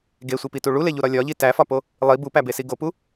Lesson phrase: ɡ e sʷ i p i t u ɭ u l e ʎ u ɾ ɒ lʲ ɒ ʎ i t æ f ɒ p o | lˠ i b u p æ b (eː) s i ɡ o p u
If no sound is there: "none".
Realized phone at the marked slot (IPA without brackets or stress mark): e